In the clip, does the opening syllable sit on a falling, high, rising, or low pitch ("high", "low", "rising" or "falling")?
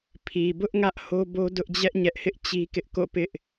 low